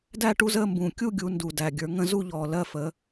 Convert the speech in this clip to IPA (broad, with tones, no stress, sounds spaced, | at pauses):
d æ˥˧ ʈ u˥˧ z əː˥˧ m b ũː˨˩ kʲ u˥˧ ɡʲ u˩˧ n d u˨˩ d æ˨˩ ɡʲ ə˞˩˧ ŋ ə̃˥˧ z u˥˧ ʎ ɔː˨˩ l ɜ˥˧ f əː˩˧